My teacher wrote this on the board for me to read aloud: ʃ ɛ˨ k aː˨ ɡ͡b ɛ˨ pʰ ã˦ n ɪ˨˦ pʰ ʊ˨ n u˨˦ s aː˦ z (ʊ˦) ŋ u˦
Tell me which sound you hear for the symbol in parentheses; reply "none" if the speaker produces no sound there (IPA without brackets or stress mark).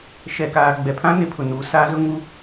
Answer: ʊ˦